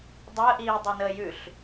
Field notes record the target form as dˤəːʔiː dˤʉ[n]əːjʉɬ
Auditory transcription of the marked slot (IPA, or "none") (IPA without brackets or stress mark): n